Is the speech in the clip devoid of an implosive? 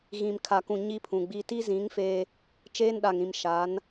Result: no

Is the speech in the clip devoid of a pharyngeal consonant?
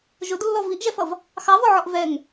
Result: no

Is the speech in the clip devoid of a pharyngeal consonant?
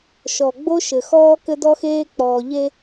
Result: yes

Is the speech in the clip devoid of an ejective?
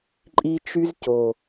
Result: no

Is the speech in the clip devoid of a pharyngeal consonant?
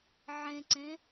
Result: no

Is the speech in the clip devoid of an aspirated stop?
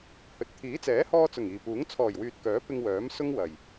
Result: no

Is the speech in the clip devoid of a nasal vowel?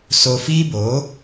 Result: yes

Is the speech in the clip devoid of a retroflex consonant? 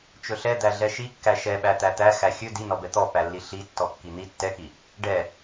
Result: no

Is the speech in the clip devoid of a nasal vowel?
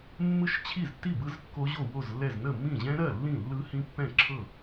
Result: no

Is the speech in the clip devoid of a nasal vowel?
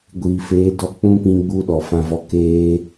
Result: no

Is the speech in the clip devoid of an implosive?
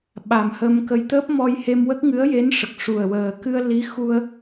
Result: no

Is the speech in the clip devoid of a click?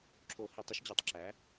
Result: no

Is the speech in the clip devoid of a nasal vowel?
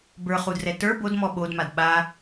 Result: yes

